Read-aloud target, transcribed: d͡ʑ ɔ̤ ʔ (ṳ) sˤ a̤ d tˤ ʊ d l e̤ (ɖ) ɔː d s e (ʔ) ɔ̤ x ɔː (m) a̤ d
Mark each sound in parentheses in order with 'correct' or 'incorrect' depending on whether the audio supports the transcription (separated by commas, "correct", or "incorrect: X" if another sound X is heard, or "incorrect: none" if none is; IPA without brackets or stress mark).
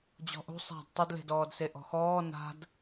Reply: correct, incorrect: d, correct, incorrect: n